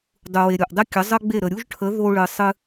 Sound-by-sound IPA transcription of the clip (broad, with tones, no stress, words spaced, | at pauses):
dˤu˩we˩ ɾʲo˩ʔdˤe˥kʲə˩˥ zˤə˥ɡ͡be˥˩ ɾə˩ɾʲu˥ʒʈʰə˩˥ ðo˧ɭɨ˩ sˤɨ˧